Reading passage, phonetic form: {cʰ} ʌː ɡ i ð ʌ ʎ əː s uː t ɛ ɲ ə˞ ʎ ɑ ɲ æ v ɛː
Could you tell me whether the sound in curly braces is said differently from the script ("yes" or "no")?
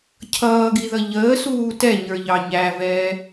no